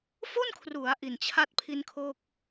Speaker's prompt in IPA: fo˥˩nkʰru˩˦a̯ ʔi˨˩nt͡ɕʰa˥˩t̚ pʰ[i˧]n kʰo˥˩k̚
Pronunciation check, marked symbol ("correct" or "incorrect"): correct